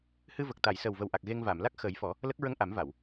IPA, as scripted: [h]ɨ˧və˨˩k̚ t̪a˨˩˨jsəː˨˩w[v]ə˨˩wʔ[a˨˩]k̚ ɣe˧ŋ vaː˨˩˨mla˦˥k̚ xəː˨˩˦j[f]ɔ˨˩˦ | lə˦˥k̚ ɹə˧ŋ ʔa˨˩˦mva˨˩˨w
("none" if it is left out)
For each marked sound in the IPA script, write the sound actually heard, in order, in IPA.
h, v, a˨˩, f

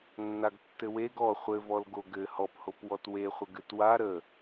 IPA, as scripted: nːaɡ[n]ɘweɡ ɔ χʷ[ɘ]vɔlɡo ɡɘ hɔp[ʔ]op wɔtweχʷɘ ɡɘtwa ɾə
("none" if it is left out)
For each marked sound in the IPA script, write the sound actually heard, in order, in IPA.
tː, ɘ, h

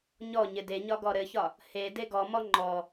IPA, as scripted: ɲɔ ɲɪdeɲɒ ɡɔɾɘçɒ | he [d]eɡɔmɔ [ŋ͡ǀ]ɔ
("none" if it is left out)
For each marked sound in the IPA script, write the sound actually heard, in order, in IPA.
d, ŋ͡ǃ

